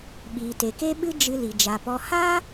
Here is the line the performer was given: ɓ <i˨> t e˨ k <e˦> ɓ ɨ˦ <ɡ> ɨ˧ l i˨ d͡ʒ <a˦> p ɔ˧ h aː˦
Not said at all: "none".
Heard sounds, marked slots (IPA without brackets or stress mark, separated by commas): iː˨, e˦, d͡ʒ, a˨